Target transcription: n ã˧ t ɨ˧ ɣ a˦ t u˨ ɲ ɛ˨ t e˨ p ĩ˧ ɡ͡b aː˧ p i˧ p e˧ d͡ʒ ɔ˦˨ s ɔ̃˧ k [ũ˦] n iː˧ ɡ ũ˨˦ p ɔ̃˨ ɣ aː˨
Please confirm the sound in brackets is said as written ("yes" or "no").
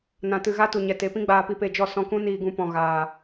yes